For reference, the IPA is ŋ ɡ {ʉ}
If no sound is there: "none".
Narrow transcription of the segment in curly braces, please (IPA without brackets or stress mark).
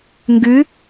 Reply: ʉ